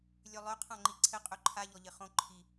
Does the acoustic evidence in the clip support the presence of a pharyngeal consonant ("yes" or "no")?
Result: no